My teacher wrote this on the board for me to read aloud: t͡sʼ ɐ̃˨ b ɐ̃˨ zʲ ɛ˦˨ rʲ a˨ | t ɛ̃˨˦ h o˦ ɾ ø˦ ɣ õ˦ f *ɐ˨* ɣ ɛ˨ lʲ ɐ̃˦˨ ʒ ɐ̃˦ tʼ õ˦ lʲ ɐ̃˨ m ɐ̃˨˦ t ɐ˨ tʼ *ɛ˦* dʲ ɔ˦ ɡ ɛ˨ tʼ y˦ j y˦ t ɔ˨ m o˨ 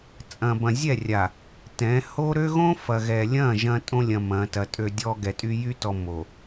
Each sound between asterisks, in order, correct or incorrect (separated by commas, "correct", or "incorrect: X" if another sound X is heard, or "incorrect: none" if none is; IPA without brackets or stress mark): correct, incorrect: ø˦